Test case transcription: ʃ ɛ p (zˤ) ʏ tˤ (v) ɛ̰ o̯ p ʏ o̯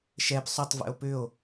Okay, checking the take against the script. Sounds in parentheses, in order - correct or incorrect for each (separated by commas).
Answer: incorrect, correct